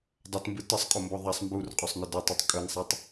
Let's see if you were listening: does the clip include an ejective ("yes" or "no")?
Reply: yes